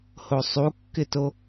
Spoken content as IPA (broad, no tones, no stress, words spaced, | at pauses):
hosˤukːɪto